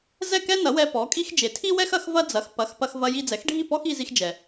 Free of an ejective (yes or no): no